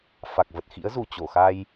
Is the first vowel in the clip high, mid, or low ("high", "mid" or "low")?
low